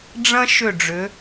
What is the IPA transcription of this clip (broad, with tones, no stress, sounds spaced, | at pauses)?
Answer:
ɖ͡ʐ ɐ̃˦ ʃ ʏ˦˨ ɖ͡ʐ ʏ˨˦